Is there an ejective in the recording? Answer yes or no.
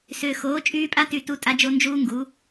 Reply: yes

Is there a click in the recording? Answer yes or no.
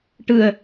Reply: no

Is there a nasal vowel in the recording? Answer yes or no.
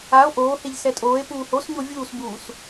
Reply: no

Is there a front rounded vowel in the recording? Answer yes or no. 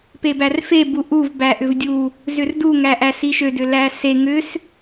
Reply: yes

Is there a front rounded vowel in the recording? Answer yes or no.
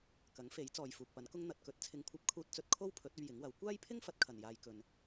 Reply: no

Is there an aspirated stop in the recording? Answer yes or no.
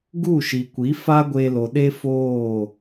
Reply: no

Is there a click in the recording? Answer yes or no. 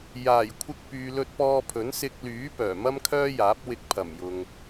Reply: no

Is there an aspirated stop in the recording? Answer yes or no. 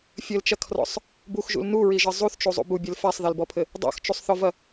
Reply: yes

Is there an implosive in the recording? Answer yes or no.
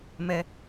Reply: no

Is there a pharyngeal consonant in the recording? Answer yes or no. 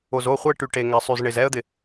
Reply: no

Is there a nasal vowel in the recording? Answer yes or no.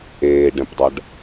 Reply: yes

